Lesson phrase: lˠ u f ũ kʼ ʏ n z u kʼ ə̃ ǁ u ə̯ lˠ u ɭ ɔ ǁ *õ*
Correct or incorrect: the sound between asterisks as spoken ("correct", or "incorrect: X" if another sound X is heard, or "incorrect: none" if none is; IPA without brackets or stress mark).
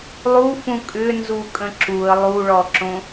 correct